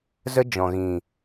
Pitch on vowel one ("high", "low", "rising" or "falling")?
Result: high